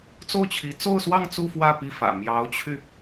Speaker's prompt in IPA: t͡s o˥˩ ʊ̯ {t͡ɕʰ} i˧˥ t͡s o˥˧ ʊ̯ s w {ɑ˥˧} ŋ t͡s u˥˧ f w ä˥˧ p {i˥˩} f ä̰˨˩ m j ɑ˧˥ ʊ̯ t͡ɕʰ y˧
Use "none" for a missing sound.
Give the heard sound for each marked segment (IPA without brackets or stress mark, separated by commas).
t͡ɕʰ, ɑ˥˧, i˥˩